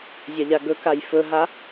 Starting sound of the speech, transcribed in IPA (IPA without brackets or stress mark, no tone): zʲ